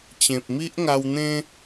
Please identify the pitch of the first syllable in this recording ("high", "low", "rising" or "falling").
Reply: low